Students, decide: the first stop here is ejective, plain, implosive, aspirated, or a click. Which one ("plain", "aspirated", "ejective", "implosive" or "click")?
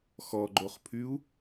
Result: click